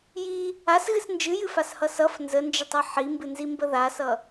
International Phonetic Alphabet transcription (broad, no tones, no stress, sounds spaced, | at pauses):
j i | a s ɣ ɨ s n d͡ʒ ɨ j ɨ f a s h ʌ s ʌ f n z ə n d͡ʒ ə tˤ ʌ ħ i m b ɨ n z i m b ə ð a s ʌ